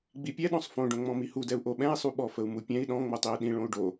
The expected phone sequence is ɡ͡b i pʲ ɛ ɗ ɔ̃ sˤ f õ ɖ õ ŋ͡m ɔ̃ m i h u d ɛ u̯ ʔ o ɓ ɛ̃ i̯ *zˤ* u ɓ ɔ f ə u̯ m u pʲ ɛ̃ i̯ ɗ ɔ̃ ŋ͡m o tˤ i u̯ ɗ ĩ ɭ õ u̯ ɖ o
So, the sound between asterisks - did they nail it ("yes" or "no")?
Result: no